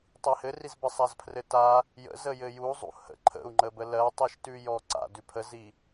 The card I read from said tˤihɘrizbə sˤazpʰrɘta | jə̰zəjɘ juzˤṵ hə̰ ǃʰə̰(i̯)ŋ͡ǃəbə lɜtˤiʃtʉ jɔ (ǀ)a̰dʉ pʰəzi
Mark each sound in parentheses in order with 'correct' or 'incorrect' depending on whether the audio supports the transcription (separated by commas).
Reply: incorrect, correct